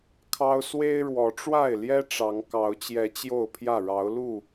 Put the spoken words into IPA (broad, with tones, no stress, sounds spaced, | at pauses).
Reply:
kʰ ɑ˦ ʊ̯ s w e˦ ɪ̯ ɻ w ɔ˨˦ ʈ͡ʂ w a˥˨ ɪ̯ l j ɛ˦ ʈ͡ʂ ɑ˨˦ ŋ k ɑ˨˦ ʊ̯ t͡ɕ j ɛ˨˦ t͡ɕ j o˥˨ ʊ̯ pʰ j ä˥˨ ɻ ɑ˨˦ ʊ̯ l u˥˨